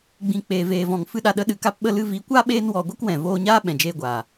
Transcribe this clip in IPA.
ɡ͡b ĩ˧ k͡p eː˧ v eː˧ v ɔ̃˧ ŋ f ɨ˦ ɗ a˧ ɗ ə˦ ɗ ɨ˧ k a˦ p ɓ ə˦ l ɨ˧ v i˨˦ kʷ a˦ ɓ eː˦ n w ɔ˧ ɡʷ ɨ˦ k w ɛ̃˨ v oː˧ ɲ aː˦ ɓ ɛ̃˨ d͡ʒ eː˧ ɡʷ aː˨

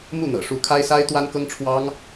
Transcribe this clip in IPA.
m u˥˩ n̪ ɤ̰˨˩ ʂ u˧˥ kʰ a˥ ɪ̯ s a˥ ɪ̯ t̪ w a˥ n k ɤ˥ ŋ ʈ͡ʂʰ w ɑ˥ ŋ

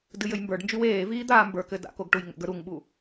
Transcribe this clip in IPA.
d ɨ j ɘ j m b ə˞ ɖ n d͡ʒ y w eː v iː d̪ aː m b ə˞ k ɘ d a̰ k o ɡ ʈ u j ŋ ə̰ ɡ ə˞ ɾ u ŋ ɓ u

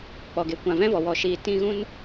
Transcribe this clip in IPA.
k͡p ɔ˨ ɡ e˨ kʷ ã˨ v ɛ̃˦ v ɔ˨ w ɔ˨ ʃ iː˨ t ĩ˧ ɣ ũ˦ n

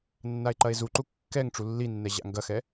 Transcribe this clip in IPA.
nː a e̯ ǃ ɐ e̯ z u ǃ u kː ɛ ŋ ʈ͡ʂ u lː i nː ɛ ʑ a̰ ŋ ɡ ɐ x ɛ

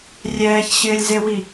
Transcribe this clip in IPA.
rʲ ɛː ç ɕ ɪː lʲ z e w i

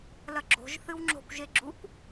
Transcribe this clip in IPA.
l ɐ ɡ͡ǁ o̤ ʒ θ ɨ w ŋ͡ǁ o̤ kʷ ʒ e ɡ͡ǁ u kʷ

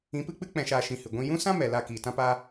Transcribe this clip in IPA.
ĩ˨˦ p ɨ˧ k͡p ɨ˦ k͡p ɛ̃˧ ʃ aː˧ ʃ ĩ˧ h ɨ˨ ɡʷ ĩ˧ j ũ˦ s ã˦ m ɛ˨ l a˧ k iː˨ t ã˦ p aː˦

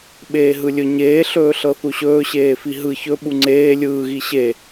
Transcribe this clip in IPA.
ɓ eː ɦ ɯ lʲ ɵ ɲ eː ɬ ɵː ɬ ɤ θ u ɕ ɵː ɕ eː f i ɦ ɯ ç ɵ ɓ u ŋ͡ǀ eː lʲ ɯː ɣ i ɕ e

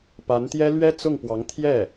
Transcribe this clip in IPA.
p a˧˥ n t̪ j ɛ˥ l ɥ ɛ˥ t͡s ʊ˥˩ ŋ p w ɑ˧˥ ŋ t̪ʰ j ɛ˥˩

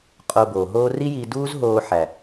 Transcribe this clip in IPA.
qʼ o˧ b oː˨ ɦ oː˦ r i˦ j iː˧ d uː˦ z ɦ oː˧ ħ æ˨

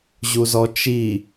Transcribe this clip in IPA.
ʑ u z ɔ t͡ʃ i

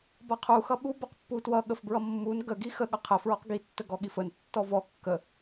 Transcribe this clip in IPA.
b ʌ qʰ u x ʌ ɓ u b ʌ q pː u t w ʌ ɠ ə f b ɹ ʌ mː u n ɡ ə ɡ i x ə ɠ ʌ qʰ ə f ɹ ɔ q ɡ i tː ə ɡ ɔ ɠ i f ə n tː ɔ v ɔ kː ə

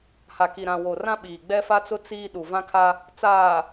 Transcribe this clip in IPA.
h a˨ k i˨ ɾ ã˨ w o˨ r ã˦ ɓ iː˨ ɡ͡b ɛ˦ f a˦ t͡s ʊ˦ t͡s iː˦ ɗ u˨ v ã˦ kʰ a˦ | t͡s aː˨

